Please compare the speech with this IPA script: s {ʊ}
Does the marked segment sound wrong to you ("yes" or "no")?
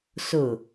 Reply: no